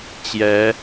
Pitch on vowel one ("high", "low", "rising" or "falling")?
rising